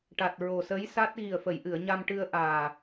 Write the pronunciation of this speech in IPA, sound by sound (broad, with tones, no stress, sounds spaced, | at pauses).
ʈ a˨˩ t̚ ɹ o˨˩ s ə˧˥ j s a˦˥ t̚ ɣ i˨˩ ə̯ f ə˨˩˨ j ʔ ɨ˨˩˨ ə̯ ɲ a˧ m ʈ ɨ˧ ə̯ ʔ aː˨˩